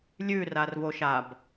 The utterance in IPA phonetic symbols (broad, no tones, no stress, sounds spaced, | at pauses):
lʲ ʉ r a r v o ʃ a b